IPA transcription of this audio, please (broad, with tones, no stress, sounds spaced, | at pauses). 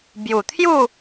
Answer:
b j u˨˩ t̪ʰ j u˥˧